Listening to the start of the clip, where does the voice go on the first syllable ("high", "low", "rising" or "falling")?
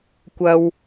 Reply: high